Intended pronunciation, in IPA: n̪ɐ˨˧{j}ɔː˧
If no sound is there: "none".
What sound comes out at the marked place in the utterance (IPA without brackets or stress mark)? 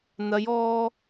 j